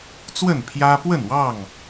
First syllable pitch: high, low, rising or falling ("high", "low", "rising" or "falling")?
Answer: falling